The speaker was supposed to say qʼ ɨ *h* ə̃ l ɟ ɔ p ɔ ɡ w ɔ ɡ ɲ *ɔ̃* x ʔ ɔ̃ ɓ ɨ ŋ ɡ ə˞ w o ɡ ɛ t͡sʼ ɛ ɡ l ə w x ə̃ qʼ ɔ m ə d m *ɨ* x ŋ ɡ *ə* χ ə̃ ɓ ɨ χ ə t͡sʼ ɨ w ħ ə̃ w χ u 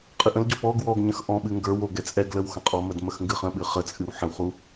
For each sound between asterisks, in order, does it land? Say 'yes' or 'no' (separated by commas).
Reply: no, no, no, no